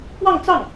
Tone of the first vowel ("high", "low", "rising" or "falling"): falling